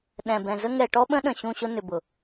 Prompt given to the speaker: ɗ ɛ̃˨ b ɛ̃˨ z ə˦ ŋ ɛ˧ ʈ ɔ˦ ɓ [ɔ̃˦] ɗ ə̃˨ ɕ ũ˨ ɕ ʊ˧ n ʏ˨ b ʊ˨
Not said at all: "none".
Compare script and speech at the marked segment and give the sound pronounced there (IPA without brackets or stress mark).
ə̃˦